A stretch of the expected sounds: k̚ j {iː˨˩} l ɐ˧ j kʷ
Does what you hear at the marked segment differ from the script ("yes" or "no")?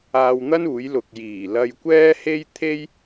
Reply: no